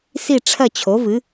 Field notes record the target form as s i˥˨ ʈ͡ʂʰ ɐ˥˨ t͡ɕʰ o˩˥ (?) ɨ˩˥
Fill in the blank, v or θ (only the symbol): v